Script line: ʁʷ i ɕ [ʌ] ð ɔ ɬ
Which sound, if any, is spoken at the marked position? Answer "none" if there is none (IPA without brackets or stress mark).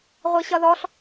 ʌ